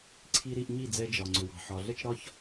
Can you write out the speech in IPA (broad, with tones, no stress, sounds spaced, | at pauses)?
ǀʰ i˧ ɾ i˧ ʔ ɲ i˦˨ d͡z ɛ˧ d͡ʒ ɒ˨ ŋ͡ǀ ʏ˨ w ɑ̤˨ ħ ɒ˨ ɮ ə˦ t͡ʃ ɾ ɒ˦ ç